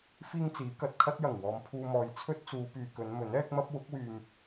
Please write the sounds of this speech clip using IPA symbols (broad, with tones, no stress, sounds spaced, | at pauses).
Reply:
f iː˥ ŋ t͡s iː˨˥ k ɐ˨ t̚ kʰ ɐ˥ t̚ j ɐ˨˩ ŋ w ɔː˨ m pʰ uː˧ m ɔː˨ j t͡sʰ ɵ˥ t̚ t͡s uː˨˧ p yː˨ k ɵ˨˧ n m ɵ˨˥ n ɛː˥ k̚ m ɐ˥ p̚ w ʊ˨˥ k̚ w yː˨ m